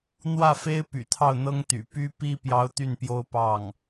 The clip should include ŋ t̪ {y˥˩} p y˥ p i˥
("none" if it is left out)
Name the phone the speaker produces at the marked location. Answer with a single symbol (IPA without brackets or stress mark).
y̰˨˩